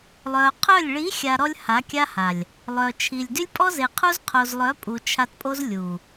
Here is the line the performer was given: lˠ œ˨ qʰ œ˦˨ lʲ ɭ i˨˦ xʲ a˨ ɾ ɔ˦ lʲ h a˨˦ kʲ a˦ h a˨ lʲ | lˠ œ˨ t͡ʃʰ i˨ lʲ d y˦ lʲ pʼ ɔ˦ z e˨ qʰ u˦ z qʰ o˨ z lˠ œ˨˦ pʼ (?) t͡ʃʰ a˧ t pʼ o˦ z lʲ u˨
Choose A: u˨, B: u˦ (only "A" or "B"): A